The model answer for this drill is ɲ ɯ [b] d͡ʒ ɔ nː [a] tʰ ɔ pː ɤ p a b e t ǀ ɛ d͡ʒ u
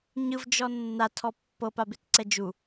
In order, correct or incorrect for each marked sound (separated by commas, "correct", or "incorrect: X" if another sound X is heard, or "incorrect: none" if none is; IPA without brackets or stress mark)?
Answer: incorrect: v, correct